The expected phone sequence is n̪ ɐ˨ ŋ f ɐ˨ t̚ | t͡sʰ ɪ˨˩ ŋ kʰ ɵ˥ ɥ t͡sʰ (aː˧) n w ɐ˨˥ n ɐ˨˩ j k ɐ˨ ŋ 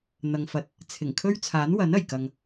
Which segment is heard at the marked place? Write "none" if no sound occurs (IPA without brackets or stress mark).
aː˨˥